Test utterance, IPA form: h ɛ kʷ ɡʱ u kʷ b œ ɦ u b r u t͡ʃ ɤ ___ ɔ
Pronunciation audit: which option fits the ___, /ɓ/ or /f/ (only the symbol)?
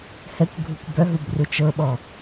ɓ